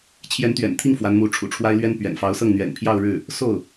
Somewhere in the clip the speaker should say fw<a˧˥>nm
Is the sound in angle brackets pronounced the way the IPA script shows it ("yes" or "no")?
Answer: yes